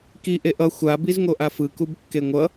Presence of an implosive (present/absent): absent